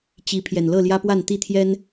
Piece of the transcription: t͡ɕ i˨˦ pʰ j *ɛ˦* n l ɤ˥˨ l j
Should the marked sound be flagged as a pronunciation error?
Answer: yes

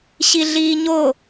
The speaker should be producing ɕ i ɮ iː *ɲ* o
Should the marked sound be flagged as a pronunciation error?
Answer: no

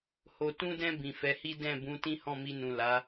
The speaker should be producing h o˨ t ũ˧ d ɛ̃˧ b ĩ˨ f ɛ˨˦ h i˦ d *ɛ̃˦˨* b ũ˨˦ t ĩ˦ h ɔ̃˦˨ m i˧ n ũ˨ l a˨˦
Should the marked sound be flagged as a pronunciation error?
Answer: no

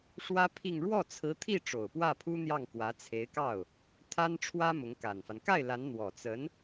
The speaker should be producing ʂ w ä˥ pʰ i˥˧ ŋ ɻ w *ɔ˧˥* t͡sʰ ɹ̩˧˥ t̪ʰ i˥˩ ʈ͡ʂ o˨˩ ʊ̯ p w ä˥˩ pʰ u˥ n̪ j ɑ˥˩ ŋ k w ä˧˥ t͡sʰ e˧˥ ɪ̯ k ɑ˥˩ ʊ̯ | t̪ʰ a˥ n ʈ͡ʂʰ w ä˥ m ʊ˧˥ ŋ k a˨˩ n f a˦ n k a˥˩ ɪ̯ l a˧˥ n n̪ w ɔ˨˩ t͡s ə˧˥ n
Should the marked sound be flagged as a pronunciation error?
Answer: yes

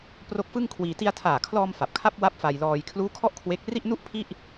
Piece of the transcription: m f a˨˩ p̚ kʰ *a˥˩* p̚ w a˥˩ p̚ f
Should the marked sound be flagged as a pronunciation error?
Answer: no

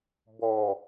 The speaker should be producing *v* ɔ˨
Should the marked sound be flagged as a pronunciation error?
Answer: yes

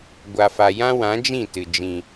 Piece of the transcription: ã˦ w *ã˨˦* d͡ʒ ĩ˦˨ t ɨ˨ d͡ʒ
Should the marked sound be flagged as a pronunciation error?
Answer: no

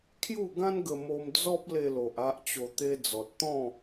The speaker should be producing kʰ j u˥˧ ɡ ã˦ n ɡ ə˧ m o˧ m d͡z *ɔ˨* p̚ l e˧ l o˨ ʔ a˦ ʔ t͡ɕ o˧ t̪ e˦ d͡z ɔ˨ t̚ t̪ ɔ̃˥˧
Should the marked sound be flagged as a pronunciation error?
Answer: yes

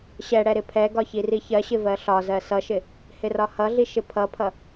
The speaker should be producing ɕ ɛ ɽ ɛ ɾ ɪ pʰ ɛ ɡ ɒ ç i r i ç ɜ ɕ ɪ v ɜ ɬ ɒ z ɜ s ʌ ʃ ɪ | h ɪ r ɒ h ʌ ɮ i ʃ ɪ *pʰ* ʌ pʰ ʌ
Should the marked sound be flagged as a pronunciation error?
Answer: no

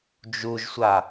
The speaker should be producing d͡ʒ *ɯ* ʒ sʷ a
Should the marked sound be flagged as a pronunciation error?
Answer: yes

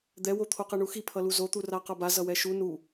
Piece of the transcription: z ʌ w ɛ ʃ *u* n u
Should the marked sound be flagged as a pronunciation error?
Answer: no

